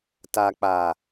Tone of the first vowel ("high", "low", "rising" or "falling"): low